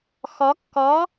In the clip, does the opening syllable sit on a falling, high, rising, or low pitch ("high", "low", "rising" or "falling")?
rising